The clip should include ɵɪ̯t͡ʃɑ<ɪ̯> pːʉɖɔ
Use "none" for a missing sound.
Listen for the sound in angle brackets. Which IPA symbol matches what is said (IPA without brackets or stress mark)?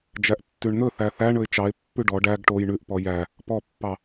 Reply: ɪ̯